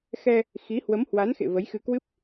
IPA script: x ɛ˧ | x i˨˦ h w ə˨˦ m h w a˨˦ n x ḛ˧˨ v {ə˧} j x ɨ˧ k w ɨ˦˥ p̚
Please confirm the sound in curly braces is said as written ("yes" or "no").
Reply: no